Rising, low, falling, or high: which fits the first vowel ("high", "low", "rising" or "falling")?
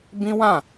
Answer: high